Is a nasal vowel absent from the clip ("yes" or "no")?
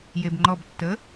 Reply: yes